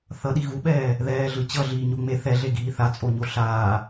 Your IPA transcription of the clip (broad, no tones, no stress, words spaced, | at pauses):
θʌɗi ɣuɓɛː | ðɛːɮɯ t͡ɕʌɮiːɲo ŋ͡me θɛɮeɡiː θat͡sʼoɲo ɬaː